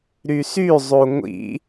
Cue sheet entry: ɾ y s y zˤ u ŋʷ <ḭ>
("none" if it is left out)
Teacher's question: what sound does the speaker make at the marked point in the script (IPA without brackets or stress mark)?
ḭ